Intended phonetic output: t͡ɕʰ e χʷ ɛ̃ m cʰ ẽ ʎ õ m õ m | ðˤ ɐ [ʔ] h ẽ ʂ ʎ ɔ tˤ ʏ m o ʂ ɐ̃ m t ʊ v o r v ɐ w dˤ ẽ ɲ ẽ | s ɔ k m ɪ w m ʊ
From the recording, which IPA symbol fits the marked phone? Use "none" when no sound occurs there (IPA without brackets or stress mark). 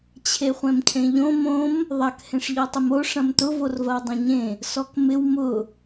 k